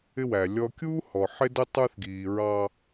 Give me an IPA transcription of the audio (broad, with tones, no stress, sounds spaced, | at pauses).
ɪ˦ w æ˨ lʲ ɔ˦ kʲ uː˦ h ɔ˨ ħ ɪ˦ d ə˦ tˤ ə˞˦ θ ɡ iː˨ ɹ ɑ˦